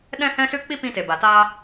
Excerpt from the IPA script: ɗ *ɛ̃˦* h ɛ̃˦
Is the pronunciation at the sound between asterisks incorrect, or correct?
correct